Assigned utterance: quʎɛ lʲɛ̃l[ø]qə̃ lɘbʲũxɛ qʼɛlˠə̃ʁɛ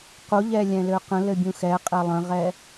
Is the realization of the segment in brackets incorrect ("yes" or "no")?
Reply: no